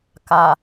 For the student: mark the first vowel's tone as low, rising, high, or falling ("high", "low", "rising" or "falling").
low